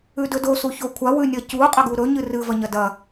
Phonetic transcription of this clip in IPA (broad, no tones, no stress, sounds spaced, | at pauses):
ʉ d ɵ d o s u ç o kʷʰ a w ʉ nʲ ɐ c u qʼ ɐ ɡ u ɾ ɵ ɲ ɨ r ɨ v ɐ ɲ ɐ d ɐ